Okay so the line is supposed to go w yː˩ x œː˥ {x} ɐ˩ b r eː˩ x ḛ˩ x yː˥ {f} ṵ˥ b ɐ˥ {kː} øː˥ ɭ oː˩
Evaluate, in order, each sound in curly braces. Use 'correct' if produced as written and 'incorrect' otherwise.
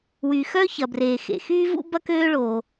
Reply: incorrect: ç, incorrect: v, incorrect: k

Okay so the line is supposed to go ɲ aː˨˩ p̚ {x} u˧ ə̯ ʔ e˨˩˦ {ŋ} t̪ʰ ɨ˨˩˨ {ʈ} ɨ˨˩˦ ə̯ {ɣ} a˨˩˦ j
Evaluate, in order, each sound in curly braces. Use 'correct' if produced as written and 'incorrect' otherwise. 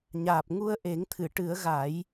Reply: incorrect: ŋ, correct, correct, correct

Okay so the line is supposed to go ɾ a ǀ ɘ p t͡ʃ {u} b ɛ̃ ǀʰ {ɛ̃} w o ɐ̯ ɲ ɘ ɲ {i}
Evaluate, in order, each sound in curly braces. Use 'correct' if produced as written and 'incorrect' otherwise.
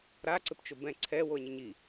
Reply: incorrect: o, incorrect: ɛ, correct

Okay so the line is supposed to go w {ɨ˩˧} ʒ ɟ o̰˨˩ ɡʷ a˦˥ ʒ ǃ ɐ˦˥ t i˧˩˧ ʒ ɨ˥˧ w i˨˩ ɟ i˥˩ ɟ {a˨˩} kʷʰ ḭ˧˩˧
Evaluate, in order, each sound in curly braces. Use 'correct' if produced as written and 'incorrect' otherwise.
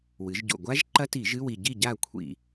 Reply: correct, incorrect: a˥˩

